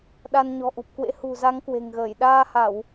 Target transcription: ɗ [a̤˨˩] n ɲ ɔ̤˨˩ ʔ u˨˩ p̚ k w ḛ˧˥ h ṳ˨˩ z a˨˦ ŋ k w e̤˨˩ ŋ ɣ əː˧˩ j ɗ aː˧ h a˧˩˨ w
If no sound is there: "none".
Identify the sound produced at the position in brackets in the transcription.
a˧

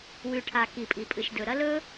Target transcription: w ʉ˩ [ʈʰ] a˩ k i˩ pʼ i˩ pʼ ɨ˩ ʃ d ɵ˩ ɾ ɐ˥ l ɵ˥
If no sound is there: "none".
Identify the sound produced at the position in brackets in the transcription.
ʈʰ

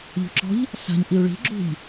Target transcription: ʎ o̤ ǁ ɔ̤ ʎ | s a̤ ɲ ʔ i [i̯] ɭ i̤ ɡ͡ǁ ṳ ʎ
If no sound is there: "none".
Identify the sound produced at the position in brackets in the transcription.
u̯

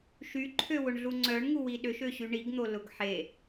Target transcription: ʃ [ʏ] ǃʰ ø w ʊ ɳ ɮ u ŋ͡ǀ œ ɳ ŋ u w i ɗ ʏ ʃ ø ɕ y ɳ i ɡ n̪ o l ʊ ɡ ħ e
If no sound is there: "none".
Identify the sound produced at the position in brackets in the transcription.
y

